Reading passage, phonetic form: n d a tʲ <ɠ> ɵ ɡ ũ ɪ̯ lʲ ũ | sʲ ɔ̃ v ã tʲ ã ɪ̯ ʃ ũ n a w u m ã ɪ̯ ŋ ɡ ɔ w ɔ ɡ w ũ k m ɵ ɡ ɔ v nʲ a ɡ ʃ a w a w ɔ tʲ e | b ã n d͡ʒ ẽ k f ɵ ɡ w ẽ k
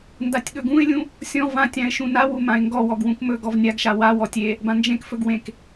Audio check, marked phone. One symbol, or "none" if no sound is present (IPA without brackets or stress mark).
ɠ